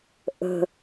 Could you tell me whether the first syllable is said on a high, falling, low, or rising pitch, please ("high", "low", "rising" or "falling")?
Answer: low